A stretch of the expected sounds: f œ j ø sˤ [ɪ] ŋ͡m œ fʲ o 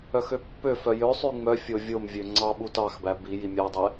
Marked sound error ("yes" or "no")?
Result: yes